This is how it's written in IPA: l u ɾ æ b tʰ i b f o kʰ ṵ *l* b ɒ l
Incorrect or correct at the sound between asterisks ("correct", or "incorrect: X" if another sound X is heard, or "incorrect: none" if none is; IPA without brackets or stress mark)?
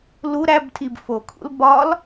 correct